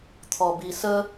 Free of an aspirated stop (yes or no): no